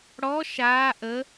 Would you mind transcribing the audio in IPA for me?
ɽɔ ʃaː ʔə

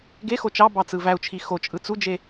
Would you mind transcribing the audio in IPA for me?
ɡexo t͡ʃɑbɑ t͡sɯvæu̯t͡ʃʰi xot͡ʃʼɯ t͡sud͡ʒe

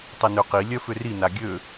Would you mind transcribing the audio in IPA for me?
tˤinøqi lʲœfʏri naɡʲø

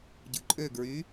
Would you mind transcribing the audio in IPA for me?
ɟɯǃʼøɡɹy

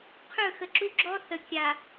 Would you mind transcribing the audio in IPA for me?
qʰɵ˦˨xə˨ǁu˦ ɡ͡ǁɔ˦θə˨ kʲa˨

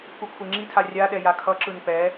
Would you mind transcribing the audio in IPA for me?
kukʷʰeŋ͡ǁitʰa rʲaɗɛ jakʰʌǁɯn pɛ

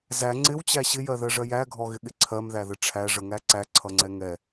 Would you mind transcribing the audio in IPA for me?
zæ ŋ͡ǀɪwt͡ɕæ ɕɪjɜðɜʐɜ jæɡʱɔɣɪɠɪ ǀʰɜmðæðə ʈ͡ʂʰæʐəŋæ ǀæǀʰʌŋ͡ǀɛ ŋɛ

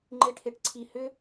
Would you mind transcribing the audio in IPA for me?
ŋ͡ǃeʈʰeʈǀʰi hʏ

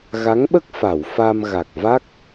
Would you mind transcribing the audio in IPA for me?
ɣa˧˥ŋɓə˦˥k̚ fa˨˩˨w fa˧m ɣa˨˩k̚va˦˥k̚

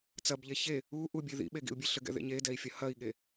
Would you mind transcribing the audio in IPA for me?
t͡sɐbʎe çe | u ʔubʲe ðḭɓeɡḭu̯bʲe ɬɘɡɛ̰ðḛɲ edɛi̯fʲɐ hɐi̯ɠe

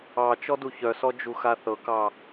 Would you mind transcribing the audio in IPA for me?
ɑ t͡ʃɔduçœsɔ d͡ʒuxaθɤkɑ

